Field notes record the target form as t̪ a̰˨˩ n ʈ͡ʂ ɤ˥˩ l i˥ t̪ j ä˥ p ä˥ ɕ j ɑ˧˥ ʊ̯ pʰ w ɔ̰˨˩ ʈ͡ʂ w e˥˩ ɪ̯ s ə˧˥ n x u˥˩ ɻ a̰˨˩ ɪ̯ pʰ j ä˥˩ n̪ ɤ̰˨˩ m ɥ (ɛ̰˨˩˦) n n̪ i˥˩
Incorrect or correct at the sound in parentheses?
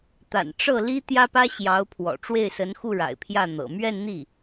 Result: incorrect: ɛ˥˧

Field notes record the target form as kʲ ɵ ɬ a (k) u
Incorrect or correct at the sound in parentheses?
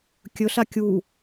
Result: incorrect: kʲ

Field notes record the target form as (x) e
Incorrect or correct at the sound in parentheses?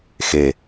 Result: correct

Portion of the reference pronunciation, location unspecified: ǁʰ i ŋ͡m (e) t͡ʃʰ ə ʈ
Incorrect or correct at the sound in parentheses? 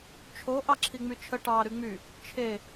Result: incorrect: y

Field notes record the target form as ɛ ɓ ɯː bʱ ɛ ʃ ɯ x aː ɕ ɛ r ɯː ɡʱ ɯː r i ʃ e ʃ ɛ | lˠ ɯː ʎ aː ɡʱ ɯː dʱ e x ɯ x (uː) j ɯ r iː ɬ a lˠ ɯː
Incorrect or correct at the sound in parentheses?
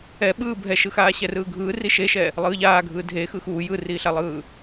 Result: correct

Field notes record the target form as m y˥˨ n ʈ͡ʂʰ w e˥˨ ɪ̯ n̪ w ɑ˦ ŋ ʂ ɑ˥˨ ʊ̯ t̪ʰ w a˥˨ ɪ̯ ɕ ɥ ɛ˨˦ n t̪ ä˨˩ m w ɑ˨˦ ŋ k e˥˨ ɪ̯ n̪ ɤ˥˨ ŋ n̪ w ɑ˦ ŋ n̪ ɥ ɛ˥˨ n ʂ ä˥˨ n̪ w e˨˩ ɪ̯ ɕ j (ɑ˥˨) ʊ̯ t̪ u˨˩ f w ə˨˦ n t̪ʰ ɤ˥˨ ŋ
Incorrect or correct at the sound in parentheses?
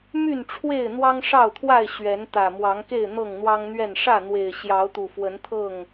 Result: incorrect: ɑ˨˦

